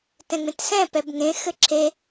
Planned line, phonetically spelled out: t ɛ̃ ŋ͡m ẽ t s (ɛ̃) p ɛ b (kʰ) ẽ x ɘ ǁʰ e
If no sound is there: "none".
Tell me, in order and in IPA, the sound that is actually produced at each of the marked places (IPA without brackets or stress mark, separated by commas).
ɛ̃, ŋ